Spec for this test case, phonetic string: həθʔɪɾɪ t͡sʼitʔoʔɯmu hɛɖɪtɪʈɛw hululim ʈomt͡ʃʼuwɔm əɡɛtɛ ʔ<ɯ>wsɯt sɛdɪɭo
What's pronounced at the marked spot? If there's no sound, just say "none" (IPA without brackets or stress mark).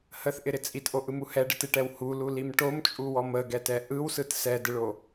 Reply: ɯ